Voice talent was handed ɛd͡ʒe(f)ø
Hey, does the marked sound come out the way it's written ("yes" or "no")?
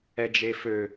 yes